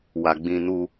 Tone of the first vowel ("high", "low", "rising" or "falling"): low